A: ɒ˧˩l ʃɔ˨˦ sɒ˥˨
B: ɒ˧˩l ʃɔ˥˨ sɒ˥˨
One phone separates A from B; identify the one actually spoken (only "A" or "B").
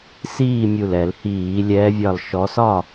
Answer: A